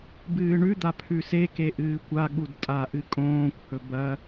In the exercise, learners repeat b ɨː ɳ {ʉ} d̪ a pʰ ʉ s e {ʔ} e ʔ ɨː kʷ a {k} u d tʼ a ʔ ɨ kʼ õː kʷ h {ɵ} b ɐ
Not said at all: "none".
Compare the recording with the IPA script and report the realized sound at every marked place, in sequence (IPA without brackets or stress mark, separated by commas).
ʉ, k, ɠ, ɵ